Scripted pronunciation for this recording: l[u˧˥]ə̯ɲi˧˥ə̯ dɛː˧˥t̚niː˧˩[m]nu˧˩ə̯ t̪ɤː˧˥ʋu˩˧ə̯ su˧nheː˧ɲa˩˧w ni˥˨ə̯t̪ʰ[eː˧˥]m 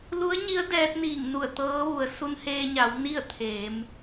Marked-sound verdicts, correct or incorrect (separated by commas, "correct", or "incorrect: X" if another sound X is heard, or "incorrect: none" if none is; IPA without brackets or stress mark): correct, incorrect: ŋ, incorrect: eː˩˧